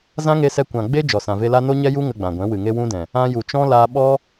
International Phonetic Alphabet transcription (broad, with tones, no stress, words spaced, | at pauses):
zã˦ŋe˧sɛ˧ kʷã˨ ɡ͡be˦ d͡ʒɔ˨sã˨ve˧la˦ no˦ɲɛ˦ju˦ ŋə˧ɡ͡bã˨ɡʷɛ̃˨˦ wɨ˨ŋe˦wũ˦dɛ̃˨ | ã˧ju˨t͡ʃɔ̃˦ laː˧ɓɔ˦